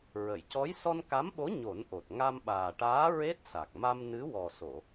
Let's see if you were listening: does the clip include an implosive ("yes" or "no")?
yes